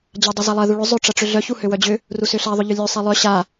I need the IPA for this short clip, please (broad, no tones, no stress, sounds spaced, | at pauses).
d͡ʑ a dˤ ø z a lˠ ɐ ð u ɭ ʏ zˤ ʏ ʈ͡ʂ ɐ ʈ͡ʂ ʏ ɮ œ ç u h ø w œ d͡ʑ ʏ | r u s ʏ ɬ a ðˤ ʏ ʎ ʏ lʲ œ sˤ e lˠ œ ɕ a